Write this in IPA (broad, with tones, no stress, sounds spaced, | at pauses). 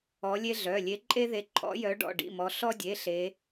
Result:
ɔ˨˦ lʲ e˦ ɮ œ˩˧˩ lʲ e˨˦ ǃʼ e˦ ð e˨˦ ǃʰ ɔ̰˨˦ j œ˨˦ ɖ ɔ̰˩˧˩ ɖ ḭ˩˧˩ m ɔ˨˦ ɬ ɔ˦ dʲ e˩˧˩ ɬ e˨˦